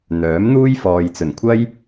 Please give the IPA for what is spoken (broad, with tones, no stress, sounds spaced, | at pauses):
n̪ œː˨˥ m n̪ uː˥ j f ɔː˨ j t͡s ɵ˨˩ n kʷʰ ɐ˥ j